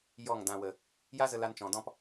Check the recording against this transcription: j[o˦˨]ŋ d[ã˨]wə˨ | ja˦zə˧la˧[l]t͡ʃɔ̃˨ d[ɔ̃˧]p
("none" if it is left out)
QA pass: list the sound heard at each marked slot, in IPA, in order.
ɔ˦˨, ã˨, n, ɔ̃˦

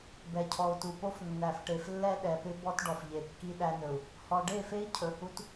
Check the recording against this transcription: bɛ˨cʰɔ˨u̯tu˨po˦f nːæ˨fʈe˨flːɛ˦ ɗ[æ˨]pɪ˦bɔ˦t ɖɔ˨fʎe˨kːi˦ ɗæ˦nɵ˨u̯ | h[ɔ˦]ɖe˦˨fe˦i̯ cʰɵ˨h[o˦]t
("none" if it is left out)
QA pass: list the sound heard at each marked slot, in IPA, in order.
ɛ˨, ɔ˨, u˦

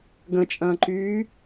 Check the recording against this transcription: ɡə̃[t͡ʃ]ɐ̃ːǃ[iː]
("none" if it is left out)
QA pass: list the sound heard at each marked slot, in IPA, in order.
t͡ʃʼ, yː

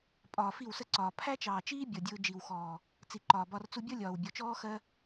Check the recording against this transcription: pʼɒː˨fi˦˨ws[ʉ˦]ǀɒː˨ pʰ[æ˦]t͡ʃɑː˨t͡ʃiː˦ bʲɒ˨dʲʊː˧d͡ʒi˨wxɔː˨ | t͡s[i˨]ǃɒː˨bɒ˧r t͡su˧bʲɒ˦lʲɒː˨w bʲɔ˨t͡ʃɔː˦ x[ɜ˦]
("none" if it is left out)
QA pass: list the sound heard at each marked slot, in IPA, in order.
ə˦, æ˦, i˨, ɜ˦

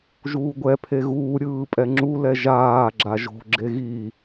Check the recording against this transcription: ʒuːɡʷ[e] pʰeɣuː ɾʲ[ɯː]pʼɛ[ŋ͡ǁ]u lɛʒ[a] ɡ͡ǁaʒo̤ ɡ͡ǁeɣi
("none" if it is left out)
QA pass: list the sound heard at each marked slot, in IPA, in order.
ɛ, ɯː, ŋ͡ǁ, aː

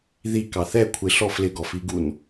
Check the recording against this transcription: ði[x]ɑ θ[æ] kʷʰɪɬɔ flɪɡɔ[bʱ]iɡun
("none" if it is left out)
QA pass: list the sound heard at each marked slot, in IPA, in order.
k, ɛ, f

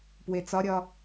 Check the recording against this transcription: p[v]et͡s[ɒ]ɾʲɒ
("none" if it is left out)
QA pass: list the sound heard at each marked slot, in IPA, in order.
w, ɒ

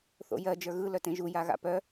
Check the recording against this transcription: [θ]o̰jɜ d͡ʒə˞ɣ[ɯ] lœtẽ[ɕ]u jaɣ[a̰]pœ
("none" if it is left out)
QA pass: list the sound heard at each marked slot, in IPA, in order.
θ, ɯ, ʒ, a̰

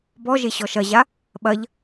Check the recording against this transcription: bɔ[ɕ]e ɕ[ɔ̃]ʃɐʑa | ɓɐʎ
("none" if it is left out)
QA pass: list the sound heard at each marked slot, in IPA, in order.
ʒ, ɔ

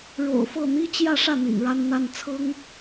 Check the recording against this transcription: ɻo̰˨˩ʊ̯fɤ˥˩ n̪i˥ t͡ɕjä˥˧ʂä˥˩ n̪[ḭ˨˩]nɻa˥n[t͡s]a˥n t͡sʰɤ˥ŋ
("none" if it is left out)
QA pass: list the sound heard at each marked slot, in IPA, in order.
ḭ˨˩, n̪

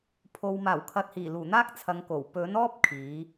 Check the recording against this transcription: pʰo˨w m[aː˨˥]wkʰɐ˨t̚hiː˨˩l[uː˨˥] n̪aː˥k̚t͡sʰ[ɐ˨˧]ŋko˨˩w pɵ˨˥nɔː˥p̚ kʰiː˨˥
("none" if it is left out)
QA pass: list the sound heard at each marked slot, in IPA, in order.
aː˨˩, uː˨˩, ɐ˨˧

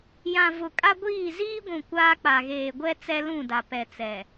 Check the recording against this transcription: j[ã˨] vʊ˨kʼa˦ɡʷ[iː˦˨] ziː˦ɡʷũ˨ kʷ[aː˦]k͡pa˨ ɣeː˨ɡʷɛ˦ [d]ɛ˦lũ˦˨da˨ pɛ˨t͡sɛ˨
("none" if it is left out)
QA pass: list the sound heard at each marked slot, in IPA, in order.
ã˨, iː˦˨, aː˦, t͡s

